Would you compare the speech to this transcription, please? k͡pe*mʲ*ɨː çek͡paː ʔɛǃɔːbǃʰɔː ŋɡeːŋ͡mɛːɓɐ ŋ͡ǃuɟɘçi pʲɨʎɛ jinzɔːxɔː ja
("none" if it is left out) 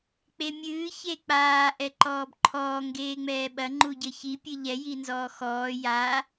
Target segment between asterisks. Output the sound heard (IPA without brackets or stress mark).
mʲ